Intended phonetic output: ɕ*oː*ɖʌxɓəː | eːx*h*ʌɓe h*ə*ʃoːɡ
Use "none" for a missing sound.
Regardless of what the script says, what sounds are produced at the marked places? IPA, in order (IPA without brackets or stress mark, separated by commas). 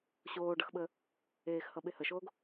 oː, h, ə